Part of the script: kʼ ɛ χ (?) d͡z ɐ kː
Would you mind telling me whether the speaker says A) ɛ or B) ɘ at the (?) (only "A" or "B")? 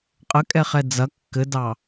A